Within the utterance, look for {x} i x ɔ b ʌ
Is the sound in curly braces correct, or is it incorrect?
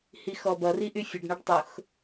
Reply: incorrect